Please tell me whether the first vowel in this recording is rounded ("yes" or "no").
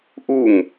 yes